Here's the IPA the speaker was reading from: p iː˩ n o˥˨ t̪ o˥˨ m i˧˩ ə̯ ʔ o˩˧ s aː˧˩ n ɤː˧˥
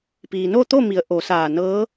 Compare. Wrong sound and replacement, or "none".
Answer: i˧˩ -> i˩˧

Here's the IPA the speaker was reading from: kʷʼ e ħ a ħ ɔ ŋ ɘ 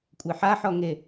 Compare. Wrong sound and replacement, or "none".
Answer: ɘ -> e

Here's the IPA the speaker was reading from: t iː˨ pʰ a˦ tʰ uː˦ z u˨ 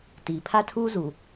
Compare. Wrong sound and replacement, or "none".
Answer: none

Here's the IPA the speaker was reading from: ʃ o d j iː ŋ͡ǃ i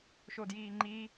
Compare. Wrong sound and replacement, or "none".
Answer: none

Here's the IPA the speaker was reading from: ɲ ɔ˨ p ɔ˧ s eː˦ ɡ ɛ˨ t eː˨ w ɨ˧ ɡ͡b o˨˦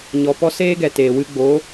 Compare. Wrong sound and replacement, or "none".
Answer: none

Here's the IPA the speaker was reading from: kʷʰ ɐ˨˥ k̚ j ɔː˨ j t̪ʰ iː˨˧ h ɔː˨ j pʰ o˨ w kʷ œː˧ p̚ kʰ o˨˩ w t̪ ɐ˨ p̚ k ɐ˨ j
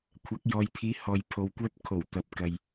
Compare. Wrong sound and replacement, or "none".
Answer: none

